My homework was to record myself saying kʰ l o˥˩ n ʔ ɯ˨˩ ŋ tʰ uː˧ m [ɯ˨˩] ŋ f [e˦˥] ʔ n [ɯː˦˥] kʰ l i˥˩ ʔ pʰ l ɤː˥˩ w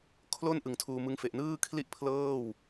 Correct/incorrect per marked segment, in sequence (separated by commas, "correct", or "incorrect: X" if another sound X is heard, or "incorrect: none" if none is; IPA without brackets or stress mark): incorrect: ɯ˦˥, incorrect: e˨˩, incorrect: ɯː˥˩